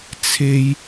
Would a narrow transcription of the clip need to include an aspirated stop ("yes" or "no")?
yes